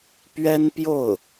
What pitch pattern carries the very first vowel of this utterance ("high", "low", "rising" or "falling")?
high